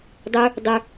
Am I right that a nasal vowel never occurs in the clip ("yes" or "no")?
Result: yes